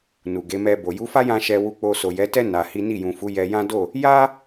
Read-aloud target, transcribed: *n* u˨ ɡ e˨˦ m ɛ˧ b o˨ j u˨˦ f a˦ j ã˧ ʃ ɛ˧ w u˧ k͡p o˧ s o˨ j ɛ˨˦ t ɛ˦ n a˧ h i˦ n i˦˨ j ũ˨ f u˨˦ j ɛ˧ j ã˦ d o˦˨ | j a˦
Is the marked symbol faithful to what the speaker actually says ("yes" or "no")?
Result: yes